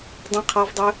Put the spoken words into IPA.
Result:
dˤ ĩ qʰ ɑ v dˤ ʏ

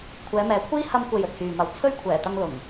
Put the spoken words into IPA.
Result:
kʷʰ ɛː˨˧ m ɛː˨˧ kʷʰ iː˥ h ɐ˧ m kʷ e˨ j ɵ˨ t̚ h yː˨ m ɐ˨ w t͡sʰ ɵ˥ ɥ kʷʰ ɛː˨˩ t̪ ɐ˧ ŋ l ʊ˨˩ ŋ

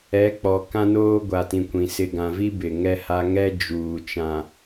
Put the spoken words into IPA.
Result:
ɛ˨˦ k͡p ɔ˨ k ã˦ n oː˦ ɡʷ a˨ t ĩ˨ kʷ ĩ˨ s ɪ˨ ɡ ã˨ v i˦ b ɪ˨ ŋ ɛ˦ h a˦ ŋ ɛ˦ d͡ʒ uː˨ t͡ʃ ã˨

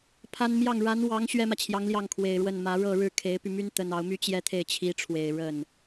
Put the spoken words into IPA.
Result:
pʰ a˥ n m j ɑ˥˩ ŋ ɻ a˧˥ n w ɑ˧˥ ŋ ɕ ɥ ɛ˥ m ä˨ t͡ɕʰ j ɑ˧˥ ŋ l j ɑ˥˩ ŋ kʰ w e˨˩ ɪ̯ ɻ w ə˥˩ n m ä˧˥ ɻ ɤ˥˧ ɻ ɻ̩˥˩ kʰ e˧˥ ɪ̯ p y˧ m y˥ n t̪ ə˥ n ɑ˧˥ ʊ̯ m y˥ t͡ɕ j ɛ˥˧ t̪ʰ e˥˩ ɪ̯ t͡ɕʰ i˧˥ ʈ͡ʂʰ w e˨˩ ɪ̯ ɻ ə˥˩ n

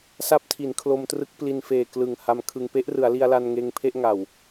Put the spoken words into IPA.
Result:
s a˦˥ p̚ tʰ i˩˦ n kʰ l o˧ m t r ɯ˦˥ k̚ p l i˧ n f eː˨˩ k l ɯ˨˩ ŋ h a˧ m kʰ ɯ˧ ŋ p e˦˥ ʔ r ɯ˩˦ a̯ l i˧ a̯ l a˧ n ŋ eː˧ ŋ pʰ e˥˩ ʔ ŋ a˨˩ w

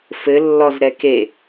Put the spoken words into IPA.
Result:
f ɘ lː ɔ z ɾ ɛ k e

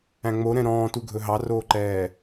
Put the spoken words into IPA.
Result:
æ̃ ŋ͡m o ɾ ɛ̃ ɾ ɔ̃ː t u ɡʱ ɵ ɦ ɑ r oː ǃ ɛː

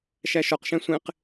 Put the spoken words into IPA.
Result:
ʃ æ ʃ ɔ q ʃ ɛ̃ sʷ ẽ q

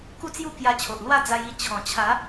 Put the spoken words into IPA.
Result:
k u˥˧ t͡s j u˥˧ k j a˧ t͡ɕʰ o˨ ʔ l w a˥˧ d͡z a˧ j i˧ t͡ɕʰ ɔ̃˨˩ t͡ɕʰ a˨˦

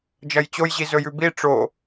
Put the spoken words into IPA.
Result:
d͡ʒ ɐ j t͡ɕ o j ʑ i z ɵ j ʉ b i ʈ͡ʂ o

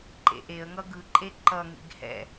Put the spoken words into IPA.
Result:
ǃ ḛ ʔ e ə̯ ŋ ʌ ɡ ɯ ǃʼ e ǃ ʌ ŋ ḭ ɡ h ɛ̰

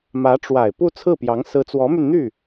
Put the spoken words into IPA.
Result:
m ä˧˥ ʈ͡ʂ w a˨˩ ɪ̯ p u˥˧ t͡sʰ ɹ̩˥˩ p j ɑ˧˥ ŋ s ɹ̩˧˥ t͡s w ɔ˧˥ m y˧ n n̪ y˥˩

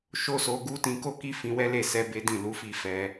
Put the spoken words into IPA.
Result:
ʃ o˦ s o˧ ɡ u˦ t ĩ˧ k o˦ k i˦ f ĩ˧ w ɛ˦ l e˦˨ s ɛ˧ b e˦ d ĩ˦˨ l u˨˦ f i˦˨ f ɛ˧

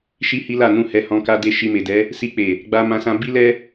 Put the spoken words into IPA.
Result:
ʃ i˦ h i˦ l a˦˨ n ũ˧ h ɛ˧ h ɔ̃˧ k a˧ d e˧ ʃ i˧ m e˨ d ɛ˨˦ | s i˧ k͡p e˨ | ɡ͡b a˧ m ã˧ s ã˧ b i˦ l ɛ˦

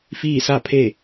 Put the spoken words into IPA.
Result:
f iː˥˨ s a˥˨ pʰ e˥˨

